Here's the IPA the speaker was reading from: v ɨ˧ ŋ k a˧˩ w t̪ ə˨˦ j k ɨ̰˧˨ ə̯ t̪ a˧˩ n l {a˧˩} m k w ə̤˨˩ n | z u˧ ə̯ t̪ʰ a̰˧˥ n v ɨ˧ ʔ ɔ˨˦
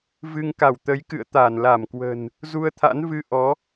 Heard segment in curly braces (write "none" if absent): a˧˩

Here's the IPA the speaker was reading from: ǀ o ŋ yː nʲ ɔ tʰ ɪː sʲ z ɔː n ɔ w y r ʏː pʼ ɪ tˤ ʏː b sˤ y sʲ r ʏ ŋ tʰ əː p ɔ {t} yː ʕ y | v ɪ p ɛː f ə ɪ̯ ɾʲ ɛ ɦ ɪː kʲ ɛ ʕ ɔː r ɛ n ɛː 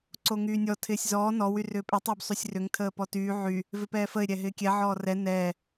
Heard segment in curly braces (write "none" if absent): t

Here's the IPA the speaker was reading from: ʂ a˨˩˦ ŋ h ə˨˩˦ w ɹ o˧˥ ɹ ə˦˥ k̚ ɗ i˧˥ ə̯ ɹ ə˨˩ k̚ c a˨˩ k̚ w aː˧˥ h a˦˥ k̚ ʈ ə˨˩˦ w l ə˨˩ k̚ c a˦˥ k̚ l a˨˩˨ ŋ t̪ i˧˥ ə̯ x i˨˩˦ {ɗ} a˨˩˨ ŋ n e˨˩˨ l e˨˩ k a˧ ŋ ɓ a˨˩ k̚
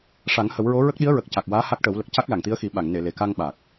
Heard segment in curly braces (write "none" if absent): ɓ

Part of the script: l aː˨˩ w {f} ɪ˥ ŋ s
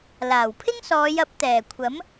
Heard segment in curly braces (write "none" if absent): pʰ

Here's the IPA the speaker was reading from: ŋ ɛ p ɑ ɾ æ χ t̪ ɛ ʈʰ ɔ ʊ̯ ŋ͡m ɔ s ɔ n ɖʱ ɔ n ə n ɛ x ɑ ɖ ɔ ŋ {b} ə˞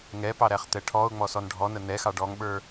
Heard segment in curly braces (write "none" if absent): ɓ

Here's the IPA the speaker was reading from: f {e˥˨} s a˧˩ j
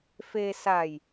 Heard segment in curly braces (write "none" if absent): e˧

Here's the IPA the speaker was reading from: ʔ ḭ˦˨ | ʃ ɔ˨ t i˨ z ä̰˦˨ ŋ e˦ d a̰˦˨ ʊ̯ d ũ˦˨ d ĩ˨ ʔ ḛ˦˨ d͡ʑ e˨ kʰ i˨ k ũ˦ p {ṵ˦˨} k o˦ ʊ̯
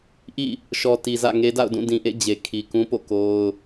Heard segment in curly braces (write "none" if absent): o̰˦˨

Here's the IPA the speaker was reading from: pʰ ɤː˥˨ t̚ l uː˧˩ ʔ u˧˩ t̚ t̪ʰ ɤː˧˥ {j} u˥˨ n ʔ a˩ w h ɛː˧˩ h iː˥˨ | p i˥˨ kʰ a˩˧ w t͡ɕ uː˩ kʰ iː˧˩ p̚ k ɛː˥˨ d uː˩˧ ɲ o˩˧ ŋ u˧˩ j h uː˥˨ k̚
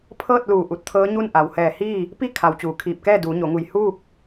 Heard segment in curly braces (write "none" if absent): ɲ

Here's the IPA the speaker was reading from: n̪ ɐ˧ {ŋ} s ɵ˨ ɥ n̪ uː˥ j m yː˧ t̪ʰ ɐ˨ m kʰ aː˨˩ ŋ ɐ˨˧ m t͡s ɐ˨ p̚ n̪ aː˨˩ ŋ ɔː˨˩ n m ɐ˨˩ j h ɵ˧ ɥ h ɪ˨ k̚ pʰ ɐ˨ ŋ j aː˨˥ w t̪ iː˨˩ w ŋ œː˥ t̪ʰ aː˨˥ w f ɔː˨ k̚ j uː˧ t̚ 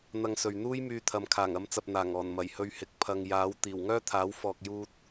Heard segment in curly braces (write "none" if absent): ŋ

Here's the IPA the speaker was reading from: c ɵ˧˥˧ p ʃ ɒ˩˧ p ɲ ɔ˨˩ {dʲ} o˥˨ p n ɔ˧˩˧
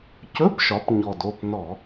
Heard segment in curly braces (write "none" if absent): d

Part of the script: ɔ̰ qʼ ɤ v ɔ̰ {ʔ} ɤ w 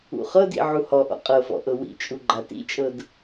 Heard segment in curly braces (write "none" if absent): ʔ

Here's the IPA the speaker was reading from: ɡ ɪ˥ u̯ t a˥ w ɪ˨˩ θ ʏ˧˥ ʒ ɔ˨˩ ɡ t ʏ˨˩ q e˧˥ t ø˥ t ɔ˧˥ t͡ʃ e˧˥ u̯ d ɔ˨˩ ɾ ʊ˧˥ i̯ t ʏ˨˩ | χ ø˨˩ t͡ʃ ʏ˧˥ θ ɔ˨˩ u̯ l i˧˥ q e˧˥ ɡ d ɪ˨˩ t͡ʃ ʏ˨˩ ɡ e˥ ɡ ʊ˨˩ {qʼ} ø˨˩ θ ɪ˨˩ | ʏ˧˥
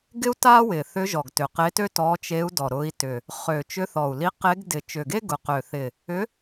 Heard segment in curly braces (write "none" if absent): q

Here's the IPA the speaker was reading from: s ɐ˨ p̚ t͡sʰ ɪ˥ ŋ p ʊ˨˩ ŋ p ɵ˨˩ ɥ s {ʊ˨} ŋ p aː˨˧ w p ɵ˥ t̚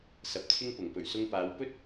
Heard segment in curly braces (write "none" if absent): ʊ˧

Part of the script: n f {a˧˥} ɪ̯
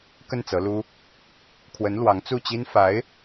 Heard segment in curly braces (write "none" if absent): a˧˥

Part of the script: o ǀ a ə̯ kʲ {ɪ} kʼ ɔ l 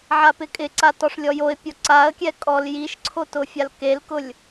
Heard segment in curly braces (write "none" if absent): ɛ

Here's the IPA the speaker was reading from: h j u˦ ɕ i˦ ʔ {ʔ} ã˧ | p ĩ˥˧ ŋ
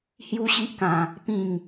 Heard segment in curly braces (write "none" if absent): k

